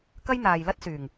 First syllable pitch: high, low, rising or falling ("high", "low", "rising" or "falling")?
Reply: high